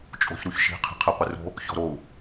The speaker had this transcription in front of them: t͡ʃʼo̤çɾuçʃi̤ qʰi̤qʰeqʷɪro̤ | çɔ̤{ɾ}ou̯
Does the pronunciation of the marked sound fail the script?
no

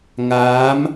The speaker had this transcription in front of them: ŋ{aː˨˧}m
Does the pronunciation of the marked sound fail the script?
no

